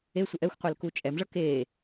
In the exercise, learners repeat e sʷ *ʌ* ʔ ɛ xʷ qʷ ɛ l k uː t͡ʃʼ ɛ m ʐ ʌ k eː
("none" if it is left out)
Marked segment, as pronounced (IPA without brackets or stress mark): ʌ